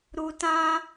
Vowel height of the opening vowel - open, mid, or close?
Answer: close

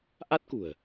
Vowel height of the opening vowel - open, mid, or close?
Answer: open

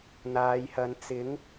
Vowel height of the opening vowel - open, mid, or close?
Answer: open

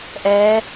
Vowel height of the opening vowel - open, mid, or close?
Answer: mid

